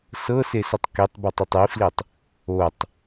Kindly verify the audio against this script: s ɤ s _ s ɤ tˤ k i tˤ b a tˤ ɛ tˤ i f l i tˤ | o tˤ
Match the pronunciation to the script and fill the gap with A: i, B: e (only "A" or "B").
B